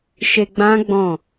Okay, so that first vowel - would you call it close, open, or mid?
mid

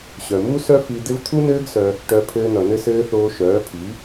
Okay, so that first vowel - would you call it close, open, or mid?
mid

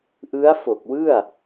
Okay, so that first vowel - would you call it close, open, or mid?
close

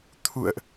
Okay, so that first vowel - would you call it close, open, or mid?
close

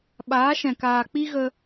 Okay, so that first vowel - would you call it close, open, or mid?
open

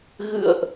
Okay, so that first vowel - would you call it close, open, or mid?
close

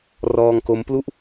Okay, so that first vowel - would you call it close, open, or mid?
mid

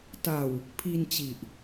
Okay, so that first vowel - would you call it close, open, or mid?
open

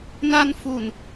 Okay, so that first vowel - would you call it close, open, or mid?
open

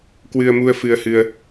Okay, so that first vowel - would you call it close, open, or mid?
close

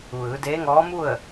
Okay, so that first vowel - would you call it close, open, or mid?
close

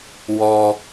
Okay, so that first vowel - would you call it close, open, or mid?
mid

